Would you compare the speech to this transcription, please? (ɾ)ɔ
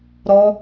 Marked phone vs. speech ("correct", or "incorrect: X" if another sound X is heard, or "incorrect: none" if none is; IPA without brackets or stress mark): correct